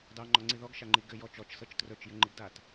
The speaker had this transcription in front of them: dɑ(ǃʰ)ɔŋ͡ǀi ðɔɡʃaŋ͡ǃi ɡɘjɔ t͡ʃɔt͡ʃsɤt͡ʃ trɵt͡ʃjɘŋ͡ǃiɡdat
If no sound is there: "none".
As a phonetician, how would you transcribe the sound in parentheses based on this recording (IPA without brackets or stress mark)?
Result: ŋ͡ǃ